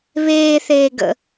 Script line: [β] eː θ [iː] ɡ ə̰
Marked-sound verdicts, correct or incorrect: correct, incorrect: eː

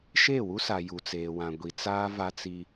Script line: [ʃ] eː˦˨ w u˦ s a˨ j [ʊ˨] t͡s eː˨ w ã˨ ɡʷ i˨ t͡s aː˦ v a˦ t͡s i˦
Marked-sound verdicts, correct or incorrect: correct, incorrect: u˨

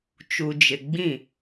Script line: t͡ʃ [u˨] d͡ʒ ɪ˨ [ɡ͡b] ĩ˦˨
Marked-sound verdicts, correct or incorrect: correct, correct

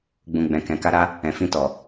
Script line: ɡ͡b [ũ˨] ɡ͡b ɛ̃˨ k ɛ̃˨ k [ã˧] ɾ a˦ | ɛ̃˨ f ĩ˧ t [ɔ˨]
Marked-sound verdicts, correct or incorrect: correct, incorrect: a˧, correct

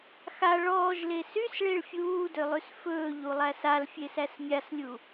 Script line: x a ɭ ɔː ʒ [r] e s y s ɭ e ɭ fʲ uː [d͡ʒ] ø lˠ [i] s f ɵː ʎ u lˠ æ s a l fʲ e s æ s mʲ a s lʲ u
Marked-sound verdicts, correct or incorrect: incorrect: l, incorrect: d, incorrect: y

